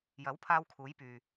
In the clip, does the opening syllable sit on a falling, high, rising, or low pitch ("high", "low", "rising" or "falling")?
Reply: rising